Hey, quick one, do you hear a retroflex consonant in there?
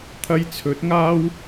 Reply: no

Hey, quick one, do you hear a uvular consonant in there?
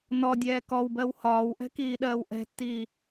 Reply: no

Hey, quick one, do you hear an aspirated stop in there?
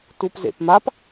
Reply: no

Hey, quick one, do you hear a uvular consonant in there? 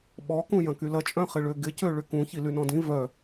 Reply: yes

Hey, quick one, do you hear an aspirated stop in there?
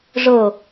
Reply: no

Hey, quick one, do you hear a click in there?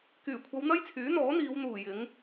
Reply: no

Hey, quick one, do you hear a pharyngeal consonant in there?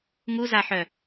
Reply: yes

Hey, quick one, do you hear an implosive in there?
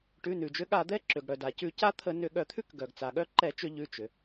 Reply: yes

